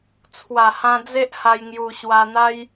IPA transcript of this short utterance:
t͡sʰwa˨˩hã˧ d͡ze˦ʔha˧jŋju˧ ɕwa˧n̪a˦j

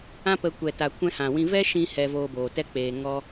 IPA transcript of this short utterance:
ã˦pə˧ kʷɛ˨ta˨ kʷɛ̃˧hã˨wĩ˧ vɛ˦ʃĩ˧ hɛ˧voː˧boː˨tɛ˦ k͡peː˧ŋɔ˦

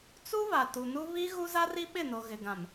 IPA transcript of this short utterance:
t͡su˦βa˨ tu˨nu˦ βi˦ ɣu˦za˦ri˦ ɓɪ˦˨no˨ ɣɪ˨ɡã˨m

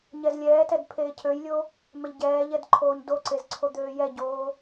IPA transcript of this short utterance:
ɲɛzlʲɛːtɛd pʰeːcʰøjlʲo | mɛʎɟɛːʎɛd ǃʰoːɲdoǀez ǀʰod̪øːjɛɟoː

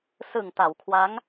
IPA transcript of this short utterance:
sɯ˨˩ŋta˩˦wkʰwa˦˥ŋ

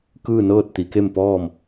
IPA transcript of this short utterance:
kɯː˥˨nɤː˥˨t̚ t̪i˩˧ke˥˨m pɔː˥˨m

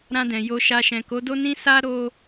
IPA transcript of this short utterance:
ɾã˧dɛ̃˨ jo˧ʃa˧ ʃɛ̃˨ko˨˦do˦ nĩ˦sa˦ ɾo˦

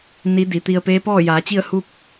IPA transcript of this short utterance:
ni˧˥di˩˧t̪i˧ə̯ peː˧˥pɔː˥˨jaː˩˧t͡ɕi˥˨ə̯ hu˥˨k̚

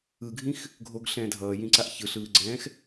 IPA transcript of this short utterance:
ɯɡʱĩx | ɡʱoɡ ɬɛ̃ːdʱʌːjĩǀaʔ çɯɬɯːɡ͡ǀɛ̃ːx

